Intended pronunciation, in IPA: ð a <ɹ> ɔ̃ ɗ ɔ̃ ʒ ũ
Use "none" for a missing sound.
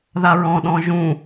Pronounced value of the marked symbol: ɹ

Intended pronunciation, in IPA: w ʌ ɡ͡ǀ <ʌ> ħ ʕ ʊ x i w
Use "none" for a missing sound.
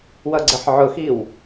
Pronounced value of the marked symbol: ə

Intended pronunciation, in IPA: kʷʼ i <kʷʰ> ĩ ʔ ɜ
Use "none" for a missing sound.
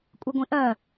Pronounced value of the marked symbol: ɡʷ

